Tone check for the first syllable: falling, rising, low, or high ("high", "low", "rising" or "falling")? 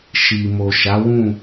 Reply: low